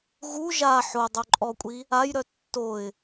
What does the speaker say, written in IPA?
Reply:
ɣ u ʒ a ħ o dˤ o ǃʼ ɔ kʷʼ i | a j ɾ œ tː o ɪ̯

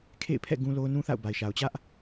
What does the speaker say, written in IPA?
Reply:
kʰ ḛ˦˨ ɪ̯ pʰ ɛ̰˦˨ ɡ ũ˦ l o˦ ʊ̯ n ũ˦ θ a̰˦˨ ʊ̯ b a˨ ɪ̯ ʃ a˨ ʊ̯ t͡ɕ ä˦ ʔ

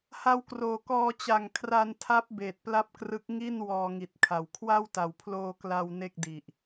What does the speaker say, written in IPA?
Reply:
h a˧ w k r oː˨˩ k ɔː˧ t͡ɕ a˨˩ ŋ kʰ r a˧ n tʰ a˦˥ p̚ b eː˨˩ t̚ p l a˥˩ p̚ k r ɯ˦˥ k̚ ŋ i˥˩ n w ɔː˧ ŋ i˨˩ t̚ kʰ a˨˩ w kʰ w a˥˩ w t a˨˩ w pʰ l oː˧ k l a˧ w n e˥˩ k̚ d i˨˩ ʔ

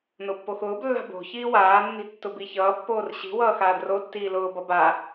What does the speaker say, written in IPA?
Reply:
n o pː o x ʊː b lː a̤ b o̤ ç iː w aː nː i̤ tː ʊ b i ç ʌː pː oː r ɕ i̤ w ʌː x aː d r o tː iː l ʊː b ʌ b a

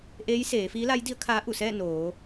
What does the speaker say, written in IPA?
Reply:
ʔ eː˧˥ j s eː˩˧ f iː˧˥ l a˧˥ j d i˧˥ ə̯ kʰ aː˧˥ ʔ u˧˩ s ɛː˥˨ n oː˩˧

